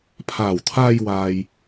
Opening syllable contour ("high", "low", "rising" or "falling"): low